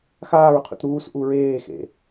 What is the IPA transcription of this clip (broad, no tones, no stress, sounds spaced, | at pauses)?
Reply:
x aː ɹ qʰ ṵ t ɾ uː s ʔ u ɹ eː x ḛ